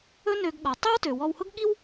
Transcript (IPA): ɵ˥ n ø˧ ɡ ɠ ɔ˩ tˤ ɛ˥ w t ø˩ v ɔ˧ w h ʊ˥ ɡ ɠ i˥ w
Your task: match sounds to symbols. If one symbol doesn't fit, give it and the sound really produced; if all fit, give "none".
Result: v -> w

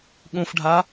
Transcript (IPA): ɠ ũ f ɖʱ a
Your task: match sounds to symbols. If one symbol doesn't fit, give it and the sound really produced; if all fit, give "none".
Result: none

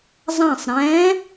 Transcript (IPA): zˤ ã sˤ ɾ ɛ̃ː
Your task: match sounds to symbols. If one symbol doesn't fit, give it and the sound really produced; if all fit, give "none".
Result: none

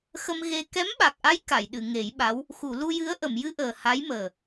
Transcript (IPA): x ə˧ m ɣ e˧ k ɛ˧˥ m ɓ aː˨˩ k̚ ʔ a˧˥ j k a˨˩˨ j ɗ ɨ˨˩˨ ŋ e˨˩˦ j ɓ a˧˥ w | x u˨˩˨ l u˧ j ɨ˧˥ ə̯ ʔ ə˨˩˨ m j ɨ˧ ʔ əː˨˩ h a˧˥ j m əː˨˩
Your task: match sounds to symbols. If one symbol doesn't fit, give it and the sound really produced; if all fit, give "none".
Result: aː˨˩ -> a˨˩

